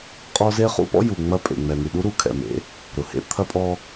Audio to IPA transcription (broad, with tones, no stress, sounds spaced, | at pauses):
qʼ ɔ˦ z e˦ χ ṵ˦ p ɔ̰˦ j u˨ ŋ͡m ɐ˦ pʼ ḛ˨ ŋ͡m ɛ˨ n̪ y˨ ɗ u˦ ɾ u˨ kʰ ɛ̰˨ m ḛ˨˦ | ɾ ʊ˨ h ḛ˦ t̪ʰ ɐ˦ pʼ ɔ˦